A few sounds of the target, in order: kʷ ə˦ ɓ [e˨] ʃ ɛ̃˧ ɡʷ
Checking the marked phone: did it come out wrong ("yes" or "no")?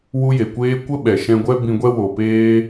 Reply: yes